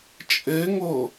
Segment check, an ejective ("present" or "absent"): present